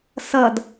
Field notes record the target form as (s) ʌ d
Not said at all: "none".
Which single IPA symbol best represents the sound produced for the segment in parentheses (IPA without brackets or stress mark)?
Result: s